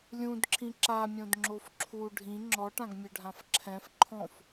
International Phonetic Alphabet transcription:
lʲ ũ d ǁʰ ĩ ǁ a mʲ õ d ŋ͡ǁ o f ǁʰ u ɖʱ ĩ ŋ͡ǁ ɔ ʈ ã ɡ mʲ ø ɖʱ ã f ǁʰ ɛ̃ f ǃʰ ɔ̃ f

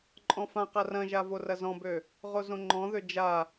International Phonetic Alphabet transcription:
ǃʼ ɔ̃ f ã q a r ɐ̃ ʒ a v o r ɐ z ɔ̃ b ø | ʁ o z õ ŋ͡ǃ ɔ̃ ð ø d͡ʒ a

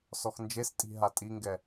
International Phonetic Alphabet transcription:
s ɔ x n d͡ʒ e s tʼ i̤ ɦ a tʼ i ŋ ɡ ɛ

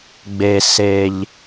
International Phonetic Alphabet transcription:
ɡ͡b e˨ s e˨ ʎ

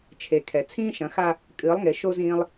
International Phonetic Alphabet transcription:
t͡ʃʰ e˨ kʰ ɛ˨ t͡sʰ ĩː˦ ʃ ɐ̃˨˦ x a˦ | kʼ ɨː˨˦ lˠ ŋ e˨ ʃ o˦ z ĩː˦ lˠ

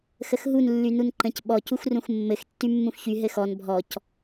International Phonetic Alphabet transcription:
x ə x ɦ u n lː y n u n ǃ ə̃ c ɓ ɔ c u x r ũ x mː ɘ x tː y mː ũ x ç y ɦ ɘ x ɔ n bʱ ɔ c

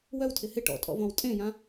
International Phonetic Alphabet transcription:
w œ w tʰ ɪ h ɪ ʈ ɔ̰ tʼ ɔ̰ v ɔ̃ w tʼ ẽ j ã

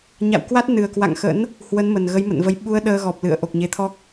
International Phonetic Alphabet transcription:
ɲ a̰˧˨ w k w a˦˥ t̚ n ɨ˨˩ ə̯ k w a̰˧˨ ŋ x ə̰˧˥ n | h w ə˨˦ n m ə˨˩ n ɣ ə˨˦ j m ə̰˧˨ n v ə˨˦ j ɓ u˧ ə̯ ɗ əː˧ ɣ ɔ˨˩ p̚ l ɨ̰˧˨ ə̯ ʔ o˨˩ k̚ ɲ e˨˦ t̪ʰ ɔ˦˥ k̚

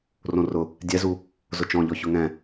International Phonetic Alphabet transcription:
r õ r ʊ | dʲ ɛ z u | z ʊ t͡ʃ ɔ̃ ʎ ɔ ç ʊ ŋ ɛ̃

